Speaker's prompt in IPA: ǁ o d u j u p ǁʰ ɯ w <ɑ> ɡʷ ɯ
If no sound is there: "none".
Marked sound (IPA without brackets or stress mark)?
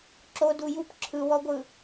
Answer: ɔ